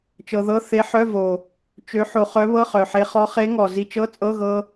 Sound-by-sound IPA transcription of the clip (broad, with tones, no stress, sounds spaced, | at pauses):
t͡ʃ ɤ˧ ð ɤ˧˥˧ θ e˧˥ ħ œ˧˥˧ v o˨˩ | t͡ʃ ø˧˥ ħ o˧ χ œ˧˥ β ɤ˧˥˧ χ œ˨˩ ħ e˧ χ ɔ˧˥ χ e˧˥ ŋ ɔ˨˩ z i˧ t͡ʃ ɤ˧˥˧ t͡sʼ ɤ˧˥˧ ɣ ɤ˧